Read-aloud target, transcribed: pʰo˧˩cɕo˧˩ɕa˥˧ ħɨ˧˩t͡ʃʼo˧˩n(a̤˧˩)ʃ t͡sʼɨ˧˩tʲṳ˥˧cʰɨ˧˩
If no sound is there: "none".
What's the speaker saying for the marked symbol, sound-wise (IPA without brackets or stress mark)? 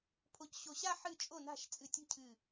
a̤˧˩